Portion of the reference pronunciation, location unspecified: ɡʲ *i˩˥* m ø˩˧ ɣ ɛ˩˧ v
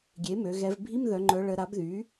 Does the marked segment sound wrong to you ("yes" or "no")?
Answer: yes